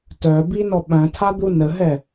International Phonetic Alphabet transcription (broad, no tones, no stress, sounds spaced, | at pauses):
t œ b i n ɔ ɓ œ̃ tʰ a d̪ u n ə ɦ ɛ